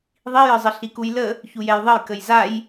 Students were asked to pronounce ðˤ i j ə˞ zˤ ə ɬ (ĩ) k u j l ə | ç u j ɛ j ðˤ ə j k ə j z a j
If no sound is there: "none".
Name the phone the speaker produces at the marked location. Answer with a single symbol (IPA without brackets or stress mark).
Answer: i